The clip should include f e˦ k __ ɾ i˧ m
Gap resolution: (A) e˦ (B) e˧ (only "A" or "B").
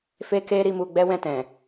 A